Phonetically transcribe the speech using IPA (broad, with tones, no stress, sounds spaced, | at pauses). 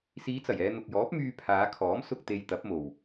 s iː˨˧ t͡s ɐ˨˩ j ɛː˧ n̪ ʊ˨ k̚ j ɔː˨˥ p̚ m yː˧ pʰ aː˨˧ kʰ ɔː˨˥ m s ʊ˧ k̚ t̪ e˧ j t̪ ɐ˨˥ p̚ m o˨ w